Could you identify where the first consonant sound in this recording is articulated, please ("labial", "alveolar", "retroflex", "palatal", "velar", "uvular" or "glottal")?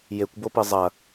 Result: palatal